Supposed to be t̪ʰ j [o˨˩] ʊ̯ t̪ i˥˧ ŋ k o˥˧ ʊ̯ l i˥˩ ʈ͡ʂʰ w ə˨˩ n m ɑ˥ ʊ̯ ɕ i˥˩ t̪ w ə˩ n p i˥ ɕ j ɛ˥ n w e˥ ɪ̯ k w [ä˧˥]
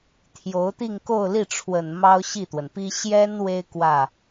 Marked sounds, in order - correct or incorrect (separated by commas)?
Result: incorrect, incorrect